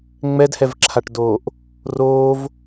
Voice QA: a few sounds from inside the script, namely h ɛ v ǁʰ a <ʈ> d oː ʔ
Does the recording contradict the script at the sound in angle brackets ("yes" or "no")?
no